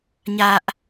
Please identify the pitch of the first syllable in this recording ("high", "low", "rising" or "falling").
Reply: high